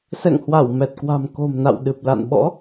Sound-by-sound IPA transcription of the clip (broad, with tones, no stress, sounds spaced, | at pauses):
s ɛ̰˧˨ ŋ h w a˧˩ w m ɛ˨˩ t̚ k w a̤˨˩ m k o̤˨˩ m n a̰˧˨ w ɗ ɨ˨˩ p̚ l a̰˧˨ n ɓ ɔ̰˧˥